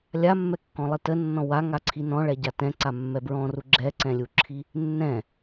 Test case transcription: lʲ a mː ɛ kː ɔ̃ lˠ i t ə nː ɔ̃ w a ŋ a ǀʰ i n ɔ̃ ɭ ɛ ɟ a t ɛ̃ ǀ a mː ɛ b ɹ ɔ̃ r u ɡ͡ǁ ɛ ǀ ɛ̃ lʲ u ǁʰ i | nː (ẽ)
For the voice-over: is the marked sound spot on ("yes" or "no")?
no